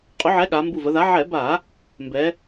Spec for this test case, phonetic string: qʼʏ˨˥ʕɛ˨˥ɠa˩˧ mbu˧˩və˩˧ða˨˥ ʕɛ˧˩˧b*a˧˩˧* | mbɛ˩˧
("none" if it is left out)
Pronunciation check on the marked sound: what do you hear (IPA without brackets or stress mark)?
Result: a˧˩˧